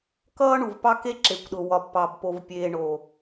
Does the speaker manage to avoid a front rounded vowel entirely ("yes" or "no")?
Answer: yes